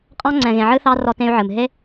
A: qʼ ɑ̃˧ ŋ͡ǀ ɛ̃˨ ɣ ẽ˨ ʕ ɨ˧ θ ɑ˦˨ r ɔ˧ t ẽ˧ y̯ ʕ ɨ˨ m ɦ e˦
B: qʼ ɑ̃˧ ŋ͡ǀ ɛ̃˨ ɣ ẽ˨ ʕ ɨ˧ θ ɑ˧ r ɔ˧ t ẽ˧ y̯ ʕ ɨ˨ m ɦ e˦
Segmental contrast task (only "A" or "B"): B